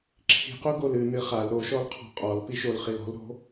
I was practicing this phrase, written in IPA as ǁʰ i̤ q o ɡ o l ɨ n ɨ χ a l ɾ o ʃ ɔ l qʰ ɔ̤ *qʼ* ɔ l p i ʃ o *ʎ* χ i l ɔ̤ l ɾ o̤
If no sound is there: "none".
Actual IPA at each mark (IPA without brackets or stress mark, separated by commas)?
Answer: qʼ, l